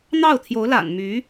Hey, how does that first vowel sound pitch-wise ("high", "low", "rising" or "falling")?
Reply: falling